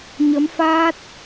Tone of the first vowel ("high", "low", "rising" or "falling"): rising